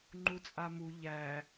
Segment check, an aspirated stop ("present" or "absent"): absent